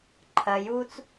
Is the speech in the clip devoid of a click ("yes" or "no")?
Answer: no